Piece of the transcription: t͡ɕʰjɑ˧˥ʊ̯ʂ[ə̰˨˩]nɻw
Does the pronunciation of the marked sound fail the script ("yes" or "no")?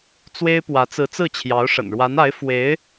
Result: no